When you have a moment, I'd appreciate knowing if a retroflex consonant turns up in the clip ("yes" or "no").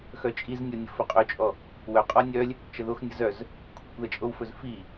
no